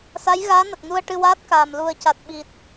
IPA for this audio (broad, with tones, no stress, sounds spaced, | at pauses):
s a˧˥ j ɣ aː˧˥ n ə˨˩ k̚ n u˧ ə̯ ʈ ɨ˧ w aː˦˥ t̚ k aː˨˩ m l u˨˩ ə̯ c a˨˩ t̚ ɓ i˨˩ t̚